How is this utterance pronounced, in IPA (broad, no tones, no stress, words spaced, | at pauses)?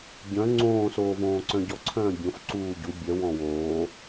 ɟœ̃ ŋ͡ǀõːsoːvõː ǀœ̃ɟɔǀʰœ̃ː bʲõf ǀuːɟu bʲœ wɔ̃woː